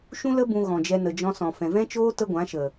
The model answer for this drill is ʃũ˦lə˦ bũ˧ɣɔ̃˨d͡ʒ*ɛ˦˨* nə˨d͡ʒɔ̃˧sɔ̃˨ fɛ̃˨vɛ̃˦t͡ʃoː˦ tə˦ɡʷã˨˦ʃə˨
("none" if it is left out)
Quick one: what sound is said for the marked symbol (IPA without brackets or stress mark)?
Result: ɛ˧